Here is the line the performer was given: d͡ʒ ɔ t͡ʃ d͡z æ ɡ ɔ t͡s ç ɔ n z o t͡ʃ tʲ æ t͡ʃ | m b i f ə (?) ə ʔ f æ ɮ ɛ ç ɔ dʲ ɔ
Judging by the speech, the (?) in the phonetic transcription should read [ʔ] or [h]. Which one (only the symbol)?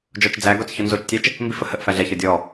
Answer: h